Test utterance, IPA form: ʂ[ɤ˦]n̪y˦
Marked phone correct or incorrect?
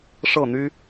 incorrect